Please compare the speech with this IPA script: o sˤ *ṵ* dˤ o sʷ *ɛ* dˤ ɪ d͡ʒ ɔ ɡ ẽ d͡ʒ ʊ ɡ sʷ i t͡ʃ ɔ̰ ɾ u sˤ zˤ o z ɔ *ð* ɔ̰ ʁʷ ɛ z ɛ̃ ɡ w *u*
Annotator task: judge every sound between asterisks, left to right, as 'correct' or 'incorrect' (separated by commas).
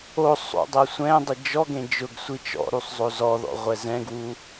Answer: correct, incorrect, correct, correct